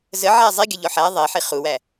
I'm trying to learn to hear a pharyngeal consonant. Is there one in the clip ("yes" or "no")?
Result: yes